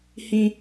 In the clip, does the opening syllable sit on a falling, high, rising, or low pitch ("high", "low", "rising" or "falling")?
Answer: high